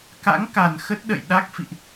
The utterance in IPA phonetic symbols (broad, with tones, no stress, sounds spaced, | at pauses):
k a̰˧˥ ŋ k a˨˩ n x ə˦˥ t̚ ɗ ə̰˧˨ j ɗ a˦˥ k̚ f ḭ˧˨ ʔ